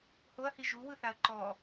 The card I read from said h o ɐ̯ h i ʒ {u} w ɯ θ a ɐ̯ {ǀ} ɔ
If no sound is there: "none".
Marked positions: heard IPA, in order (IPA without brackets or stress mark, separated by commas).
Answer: u, ǃ